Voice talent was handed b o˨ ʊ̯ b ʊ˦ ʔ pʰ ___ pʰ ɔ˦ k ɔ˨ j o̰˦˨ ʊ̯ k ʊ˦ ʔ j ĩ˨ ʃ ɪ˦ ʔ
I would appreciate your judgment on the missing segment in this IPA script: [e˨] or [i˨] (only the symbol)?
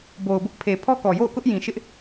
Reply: e˨